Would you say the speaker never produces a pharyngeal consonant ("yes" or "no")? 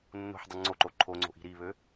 no